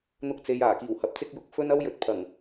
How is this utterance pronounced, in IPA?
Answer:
n̪ ʊ˧ k̚ t͡s e˨ j aː˨˩ k iː˨˩ w h ɐ˨ p̚ t͡s ɪ˧ k̚ j ʊ˨ k̚ f ɵ˥ n ɐ˥ w j ɵ˨˥ t̚ pʰ ɐ˨˩ ŋ

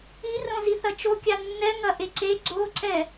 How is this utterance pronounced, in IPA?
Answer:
i r õ z i θ ɐ t͡ʃ o kʲ a nː ɛ ŋ ɐ ʔ e ǀ e ɡ͡ǀ o ǀ ɛ

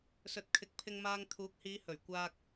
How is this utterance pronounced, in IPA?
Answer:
s ɵ˨ t̚ kʰ ɪ˨˥ k̚ pʰ ɪ˧ ŋ m aː˧ ŋ t̪ʰ uː˨˥ k̚ h iː˨˧ h ɵ˨˩ ɥ kʷ aː˧ k̚

